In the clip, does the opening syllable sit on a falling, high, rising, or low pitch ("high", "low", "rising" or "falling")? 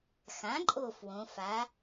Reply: rising